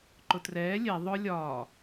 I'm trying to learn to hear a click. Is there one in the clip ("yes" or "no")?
yes